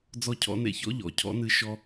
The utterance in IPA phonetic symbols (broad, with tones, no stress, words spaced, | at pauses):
d͡zɔ˧cʰɔ̰˧nḛ˧çɔ̰˦ ʎɔ̰˨cʰɔ̰˦nɨ˧ ʃɔ˧